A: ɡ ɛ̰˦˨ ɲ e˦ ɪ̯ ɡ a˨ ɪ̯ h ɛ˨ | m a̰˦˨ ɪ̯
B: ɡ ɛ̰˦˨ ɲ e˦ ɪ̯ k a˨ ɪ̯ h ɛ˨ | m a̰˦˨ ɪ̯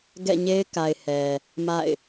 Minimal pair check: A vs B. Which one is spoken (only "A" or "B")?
B